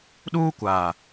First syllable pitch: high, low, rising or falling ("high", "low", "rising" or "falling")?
high